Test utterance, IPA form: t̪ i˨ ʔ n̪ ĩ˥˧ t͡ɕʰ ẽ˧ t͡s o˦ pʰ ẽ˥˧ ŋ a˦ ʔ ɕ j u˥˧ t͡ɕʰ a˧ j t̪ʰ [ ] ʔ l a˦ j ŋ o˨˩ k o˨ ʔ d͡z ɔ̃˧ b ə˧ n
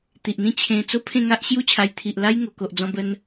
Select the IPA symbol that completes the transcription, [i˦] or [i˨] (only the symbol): i˨